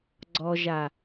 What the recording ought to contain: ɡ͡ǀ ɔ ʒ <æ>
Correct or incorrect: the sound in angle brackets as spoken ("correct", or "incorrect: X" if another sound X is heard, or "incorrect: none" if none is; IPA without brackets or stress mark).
incorrect: a